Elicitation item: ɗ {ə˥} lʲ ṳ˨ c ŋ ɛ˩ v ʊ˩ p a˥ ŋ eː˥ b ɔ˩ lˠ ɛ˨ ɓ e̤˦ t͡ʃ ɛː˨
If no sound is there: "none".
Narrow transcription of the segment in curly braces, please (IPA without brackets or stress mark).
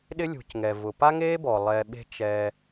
ɪ˥